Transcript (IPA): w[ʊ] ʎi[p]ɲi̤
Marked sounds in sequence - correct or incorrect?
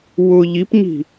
correct, correct

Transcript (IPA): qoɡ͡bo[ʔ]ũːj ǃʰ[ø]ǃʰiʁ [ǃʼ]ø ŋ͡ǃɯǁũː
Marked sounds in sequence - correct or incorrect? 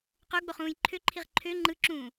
incorrect: χ, correct, incorrect: ǃʰ

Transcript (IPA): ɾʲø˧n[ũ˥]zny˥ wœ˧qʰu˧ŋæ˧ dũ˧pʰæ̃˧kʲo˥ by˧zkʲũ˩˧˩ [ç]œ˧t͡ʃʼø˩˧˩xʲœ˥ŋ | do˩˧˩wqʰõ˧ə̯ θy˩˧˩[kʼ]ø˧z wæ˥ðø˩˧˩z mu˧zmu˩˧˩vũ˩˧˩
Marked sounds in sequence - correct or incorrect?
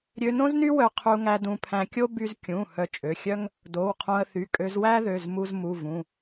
incorrect: õ˥, incorrect: h, correct

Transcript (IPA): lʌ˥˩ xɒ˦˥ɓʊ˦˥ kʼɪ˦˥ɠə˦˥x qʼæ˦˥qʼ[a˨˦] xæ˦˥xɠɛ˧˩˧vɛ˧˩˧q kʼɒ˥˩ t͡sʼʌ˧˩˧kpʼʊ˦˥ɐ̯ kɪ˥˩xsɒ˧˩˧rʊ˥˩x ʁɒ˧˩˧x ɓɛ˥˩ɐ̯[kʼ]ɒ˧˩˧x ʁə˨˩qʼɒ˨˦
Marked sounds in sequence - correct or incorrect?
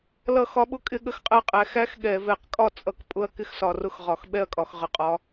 incorrect: æ˨˦, correct

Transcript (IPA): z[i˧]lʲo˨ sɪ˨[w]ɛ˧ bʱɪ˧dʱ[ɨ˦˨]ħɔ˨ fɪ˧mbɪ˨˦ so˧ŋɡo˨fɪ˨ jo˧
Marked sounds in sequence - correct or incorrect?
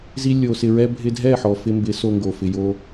correct, incorrect: ɹ, incorrect: ɛ˦˨

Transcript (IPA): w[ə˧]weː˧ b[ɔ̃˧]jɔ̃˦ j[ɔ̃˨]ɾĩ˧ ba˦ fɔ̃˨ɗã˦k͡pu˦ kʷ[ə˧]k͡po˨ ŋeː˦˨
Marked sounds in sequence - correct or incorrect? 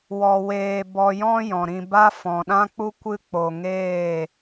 incorrect: ɔ˧, incorrect: ɔ˧, correct, incorrect: ɨ˧

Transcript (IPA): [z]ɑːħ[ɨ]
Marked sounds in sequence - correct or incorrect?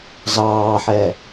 correct, incorrect: ɛ

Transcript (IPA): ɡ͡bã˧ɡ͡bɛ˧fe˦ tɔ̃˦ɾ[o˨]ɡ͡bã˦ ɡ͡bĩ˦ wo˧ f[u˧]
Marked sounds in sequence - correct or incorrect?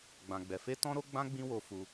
incorrect: o˦, correct

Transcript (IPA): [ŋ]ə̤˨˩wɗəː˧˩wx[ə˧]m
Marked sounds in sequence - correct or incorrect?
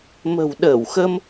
incorrect: m, correct

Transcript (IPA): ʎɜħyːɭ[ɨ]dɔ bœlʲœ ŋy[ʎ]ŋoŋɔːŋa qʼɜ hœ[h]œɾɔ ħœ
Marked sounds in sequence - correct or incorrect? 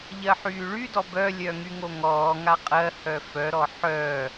incorrect: y, incorrect: none, incorrect: f

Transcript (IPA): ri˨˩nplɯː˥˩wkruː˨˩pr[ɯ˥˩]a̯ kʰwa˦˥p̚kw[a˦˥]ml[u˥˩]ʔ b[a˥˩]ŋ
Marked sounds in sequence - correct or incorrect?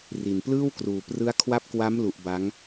incorrect: ɯ˦˥, correct, incorrect: u˨˩, incorrect: a˦˥

